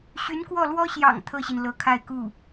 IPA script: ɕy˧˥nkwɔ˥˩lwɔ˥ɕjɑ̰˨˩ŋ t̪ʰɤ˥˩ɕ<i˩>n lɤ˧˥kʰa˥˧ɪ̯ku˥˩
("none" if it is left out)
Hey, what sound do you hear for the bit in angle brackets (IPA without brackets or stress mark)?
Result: i˩